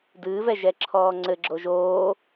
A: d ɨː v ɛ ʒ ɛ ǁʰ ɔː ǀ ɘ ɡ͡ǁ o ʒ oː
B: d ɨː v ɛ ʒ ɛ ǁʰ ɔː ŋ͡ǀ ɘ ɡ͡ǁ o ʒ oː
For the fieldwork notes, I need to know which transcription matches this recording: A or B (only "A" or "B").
B